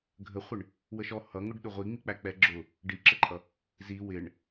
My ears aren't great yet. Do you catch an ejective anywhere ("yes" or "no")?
yes